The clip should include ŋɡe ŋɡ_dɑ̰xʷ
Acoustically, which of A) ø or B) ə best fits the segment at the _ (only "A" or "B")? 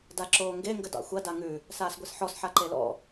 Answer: B